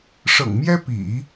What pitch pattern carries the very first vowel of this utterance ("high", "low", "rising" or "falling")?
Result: low